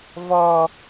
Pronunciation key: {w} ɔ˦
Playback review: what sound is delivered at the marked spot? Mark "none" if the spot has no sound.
v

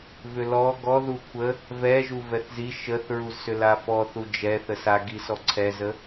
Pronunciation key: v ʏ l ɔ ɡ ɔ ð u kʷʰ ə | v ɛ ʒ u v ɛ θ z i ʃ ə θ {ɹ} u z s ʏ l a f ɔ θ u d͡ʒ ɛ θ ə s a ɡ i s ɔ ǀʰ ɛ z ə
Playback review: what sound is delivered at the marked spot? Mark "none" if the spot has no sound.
ɹ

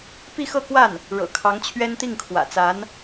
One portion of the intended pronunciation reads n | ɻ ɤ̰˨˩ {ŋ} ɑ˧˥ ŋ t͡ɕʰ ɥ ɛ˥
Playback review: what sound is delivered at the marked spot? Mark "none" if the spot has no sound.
kʰ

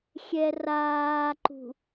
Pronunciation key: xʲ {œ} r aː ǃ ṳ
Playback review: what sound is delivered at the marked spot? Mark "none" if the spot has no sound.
ɛ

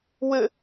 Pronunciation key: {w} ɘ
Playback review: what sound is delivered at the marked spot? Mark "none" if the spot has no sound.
w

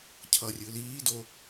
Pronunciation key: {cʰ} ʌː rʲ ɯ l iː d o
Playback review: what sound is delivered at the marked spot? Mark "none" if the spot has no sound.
cʰ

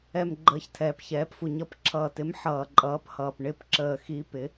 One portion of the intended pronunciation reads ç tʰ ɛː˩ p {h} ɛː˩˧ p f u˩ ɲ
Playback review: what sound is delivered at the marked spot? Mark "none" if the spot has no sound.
ç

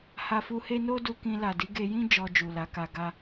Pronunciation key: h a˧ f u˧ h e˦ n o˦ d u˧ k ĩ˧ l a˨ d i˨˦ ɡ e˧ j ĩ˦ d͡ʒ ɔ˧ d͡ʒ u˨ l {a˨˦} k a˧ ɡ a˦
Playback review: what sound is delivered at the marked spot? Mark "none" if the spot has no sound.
a˨˦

